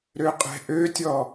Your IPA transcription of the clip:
ɾøqʼɛ̤ʔøtʲɔ

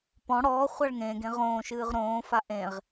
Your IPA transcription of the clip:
pɔ̃ ɽɔː χʷaɭŋẽːɡẽ ʁõːʃɨːʁ ɾõːfa ʔẽʁ

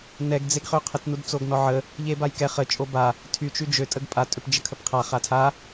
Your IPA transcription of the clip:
nɛɡ d͡zeɡχøqʰət nudt͡soɡnɔʕə | ʎebajkɛχ ə t͡ʃʼoba | tʰy t͡ʃyd͡ʒø tʼəɡpʼa tʼøpd͡ʒəkʰəpqʰa χatʰa

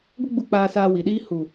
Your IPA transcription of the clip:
ɡʷə˦ɡ͡bu˧ k͡paː˧ saː˧wi˨ɗiː˦ hu˨

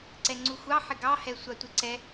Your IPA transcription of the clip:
ǀɛŋ͡ǀuxʷɑ ħɪɡɑ hɛsʷɑtʷɪǀɛ

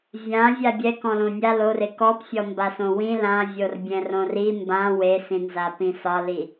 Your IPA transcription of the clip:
vʲã vʲabʲɛ kɔ̃lõnʲa lore kɔpfʲɔmbasõ wĩ lãvʲor bʲɛ̃rõri mbã wesĩnza pĩsɒli

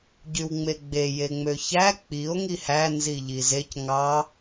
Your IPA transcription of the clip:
ɟywŋ͡meɡ͡be jeŋ͡møçæ k͡pio̯ ŋihæ nziʎizec ŋɑ

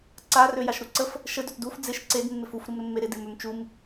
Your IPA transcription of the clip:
ǀa røjaʃɾuǀəf | ʃəd øtduf d͡zɪʃ ǀed mːɪfuf ɾumɾəmːeɾɪ dɪmømt͡ʃum

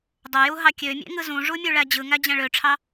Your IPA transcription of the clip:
dˤojuɦɑ kʲømʲḛŋɯ zũʐumʲuɭæ d͡ʑɯŋæd͡ʑæ̃ ɭøʈ͡ʂʰɑ

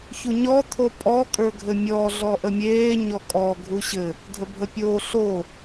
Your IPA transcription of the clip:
çuɲɔ t̪ʰopʼɔ kʼə˞ɡʱɘmʲɔ ɮɔʔəmʲeː ɲɔkʼɔ ɡʱuɕɘ | dʱəbʱəpʲo ɬo

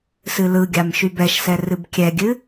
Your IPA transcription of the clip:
sɨlɯɡʲam ʃybɛʃsɛ rɨbkʲɛɡʲɨ

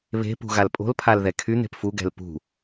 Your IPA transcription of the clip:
βe̤pṳ ɣalpʼo̤lpʰal ðɛkʰyn̪e̤p fuɡɛ̤l pṳ

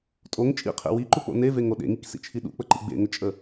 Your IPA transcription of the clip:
tʼoŋ t͡ʃʼḭqʰḛ wiǃuk͡po̰ neveŋo ɗḛŋiksḭt͡ʃʰi ɗṵk͡pəǃḭ ɡ͡bḛŋət͡ʃʼə

